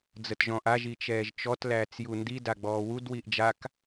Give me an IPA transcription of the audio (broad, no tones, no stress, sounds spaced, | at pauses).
d͡z ə t ʒ ɔ̃ ʔ a ʒ i t͡ʃ ɛː ʒ t͡ʃ ɔ t l æː t͡s j u n d i d a ɡ͡b ɔː w u d w i ʔ d͡ʒ a k